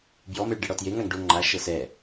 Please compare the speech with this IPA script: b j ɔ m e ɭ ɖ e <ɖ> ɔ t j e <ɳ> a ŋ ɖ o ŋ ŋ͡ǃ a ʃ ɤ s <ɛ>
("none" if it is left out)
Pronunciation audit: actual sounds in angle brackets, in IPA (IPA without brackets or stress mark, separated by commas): ɽ, ŋ, ɛ